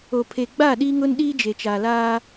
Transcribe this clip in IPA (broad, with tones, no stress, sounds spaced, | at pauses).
o˨ pʰ e˨ ɡ͡b a˦˨ ɗ iː˦ ŋ ʊ˦ n ɗ iː˦ d͡ʒ e˨ t͡ʃ aː˨ l aː˦